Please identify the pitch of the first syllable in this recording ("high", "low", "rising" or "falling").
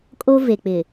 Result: high